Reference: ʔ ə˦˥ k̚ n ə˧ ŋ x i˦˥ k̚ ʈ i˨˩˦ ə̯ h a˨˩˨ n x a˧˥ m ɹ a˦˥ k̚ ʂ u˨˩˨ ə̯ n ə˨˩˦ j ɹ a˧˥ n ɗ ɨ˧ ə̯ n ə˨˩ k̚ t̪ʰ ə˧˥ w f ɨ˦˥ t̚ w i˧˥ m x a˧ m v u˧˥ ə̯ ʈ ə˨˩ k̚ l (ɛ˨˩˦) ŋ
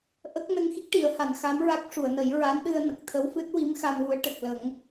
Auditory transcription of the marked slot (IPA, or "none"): ə˨˩˦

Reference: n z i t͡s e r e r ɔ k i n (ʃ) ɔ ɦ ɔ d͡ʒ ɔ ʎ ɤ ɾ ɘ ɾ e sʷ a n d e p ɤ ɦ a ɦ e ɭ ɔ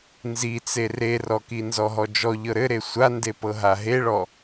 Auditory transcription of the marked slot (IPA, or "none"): z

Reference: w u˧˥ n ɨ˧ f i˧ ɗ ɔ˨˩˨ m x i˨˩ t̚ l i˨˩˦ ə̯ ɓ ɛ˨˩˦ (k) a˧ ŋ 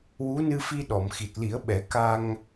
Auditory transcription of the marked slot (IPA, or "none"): k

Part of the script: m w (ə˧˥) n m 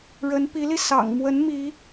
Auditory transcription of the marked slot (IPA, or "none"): ə˧˥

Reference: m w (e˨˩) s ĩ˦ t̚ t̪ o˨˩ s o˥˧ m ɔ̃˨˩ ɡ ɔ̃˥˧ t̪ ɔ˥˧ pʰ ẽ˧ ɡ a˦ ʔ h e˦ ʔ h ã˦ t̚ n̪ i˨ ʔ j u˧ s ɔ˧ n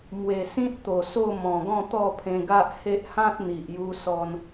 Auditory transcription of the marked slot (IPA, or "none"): e˨˩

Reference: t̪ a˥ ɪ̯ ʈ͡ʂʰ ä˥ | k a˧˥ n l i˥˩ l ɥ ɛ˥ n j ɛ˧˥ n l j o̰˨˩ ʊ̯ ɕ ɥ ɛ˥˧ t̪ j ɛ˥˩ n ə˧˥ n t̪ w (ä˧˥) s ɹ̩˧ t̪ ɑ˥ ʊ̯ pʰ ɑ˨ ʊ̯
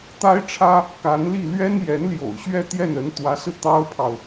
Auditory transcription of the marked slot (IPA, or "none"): ä˧˥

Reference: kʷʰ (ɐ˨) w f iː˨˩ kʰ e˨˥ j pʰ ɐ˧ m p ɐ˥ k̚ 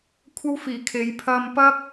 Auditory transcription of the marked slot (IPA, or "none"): ɐ˥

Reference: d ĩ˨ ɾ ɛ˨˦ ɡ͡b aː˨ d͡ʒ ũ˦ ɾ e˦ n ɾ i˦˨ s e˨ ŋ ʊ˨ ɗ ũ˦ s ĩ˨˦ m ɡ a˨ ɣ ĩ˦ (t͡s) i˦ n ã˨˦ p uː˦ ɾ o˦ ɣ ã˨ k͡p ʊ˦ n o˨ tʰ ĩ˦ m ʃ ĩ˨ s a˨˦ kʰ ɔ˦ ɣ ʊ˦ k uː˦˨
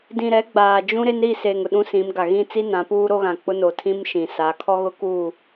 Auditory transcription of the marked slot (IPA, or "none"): t͡s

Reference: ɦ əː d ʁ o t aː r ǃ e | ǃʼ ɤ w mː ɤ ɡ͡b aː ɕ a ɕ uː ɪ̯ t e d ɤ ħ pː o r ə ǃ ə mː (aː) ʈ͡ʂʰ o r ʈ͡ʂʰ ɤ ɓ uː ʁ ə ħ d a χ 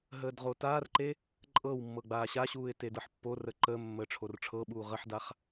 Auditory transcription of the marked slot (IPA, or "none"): əː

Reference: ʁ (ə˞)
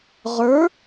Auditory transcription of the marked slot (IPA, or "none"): ə˞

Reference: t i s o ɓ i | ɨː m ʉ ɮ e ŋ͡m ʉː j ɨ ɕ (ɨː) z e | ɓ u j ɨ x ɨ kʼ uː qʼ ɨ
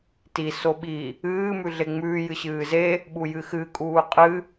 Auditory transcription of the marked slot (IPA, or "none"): ɨː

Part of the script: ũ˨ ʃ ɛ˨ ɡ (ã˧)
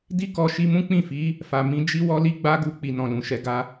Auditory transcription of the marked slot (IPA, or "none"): a˧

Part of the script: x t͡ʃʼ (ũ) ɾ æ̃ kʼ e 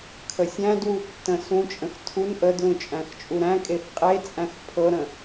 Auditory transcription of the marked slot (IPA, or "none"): u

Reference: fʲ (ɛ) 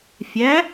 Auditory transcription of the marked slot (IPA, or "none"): æ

